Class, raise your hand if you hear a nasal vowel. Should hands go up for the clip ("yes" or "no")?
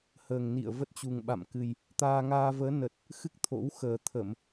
no